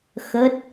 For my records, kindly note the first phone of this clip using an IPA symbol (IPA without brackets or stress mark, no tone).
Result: x